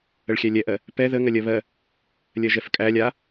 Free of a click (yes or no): yes